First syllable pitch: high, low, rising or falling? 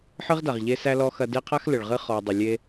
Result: high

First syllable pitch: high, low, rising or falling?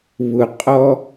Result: low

